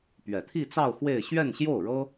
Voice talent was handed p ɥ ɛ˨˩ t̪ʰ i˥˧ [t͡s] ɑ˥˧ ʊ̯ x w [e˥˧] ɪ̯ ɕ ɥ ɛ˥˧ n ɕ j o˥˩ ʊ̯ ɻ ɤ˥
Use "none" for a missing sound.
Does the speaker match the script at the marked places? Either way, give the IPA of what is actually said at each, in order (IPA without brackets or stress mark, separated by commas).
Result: t͡s, e˥˧